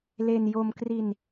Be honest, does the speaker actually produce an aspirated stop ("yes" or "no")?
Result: no